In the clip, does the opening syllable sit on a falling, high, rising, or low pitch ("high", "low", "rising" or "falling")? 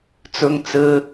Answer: high